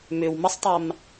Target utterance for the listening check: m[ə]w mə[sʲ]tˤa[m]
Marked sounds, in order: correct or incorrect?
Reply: incorrect, incorrect, correct

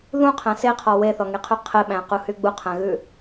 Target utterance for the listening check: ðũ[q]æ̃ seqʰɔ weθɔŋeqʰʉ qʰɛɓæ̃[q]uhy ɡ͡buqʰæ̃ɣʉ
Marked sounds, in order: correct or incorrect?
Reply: incorrect, correct

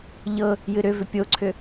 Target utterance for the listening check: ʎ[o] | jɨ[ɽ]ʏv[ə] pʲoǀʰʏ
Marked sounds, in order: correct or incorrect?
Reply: incorrect, incorrect, incorrect

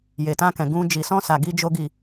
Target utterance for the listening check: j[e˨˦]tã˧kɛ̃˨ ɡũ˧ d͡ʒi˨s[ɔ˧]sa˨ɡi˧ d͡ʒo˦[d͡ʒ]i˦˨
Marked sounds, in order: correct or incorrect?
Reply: incorrect, incorrect, incorrect

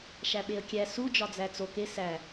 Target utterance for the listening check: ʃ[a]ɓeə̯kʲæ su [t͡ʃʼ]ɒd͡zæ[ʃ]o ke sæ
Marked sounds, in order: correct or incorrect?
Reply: incorrect, incorrect, incorrect

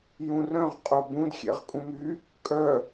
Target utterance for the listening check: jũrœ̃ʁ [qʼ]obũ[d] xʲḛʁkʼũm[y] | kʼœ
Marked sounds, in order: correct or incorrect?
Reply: correct, correct, correct

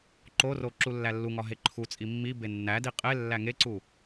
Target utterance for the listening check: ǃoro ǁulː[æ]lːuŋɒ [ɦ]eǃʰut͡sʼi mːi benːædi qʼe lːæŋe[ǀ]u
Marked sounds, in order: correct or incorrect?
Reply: correct, correct, correct

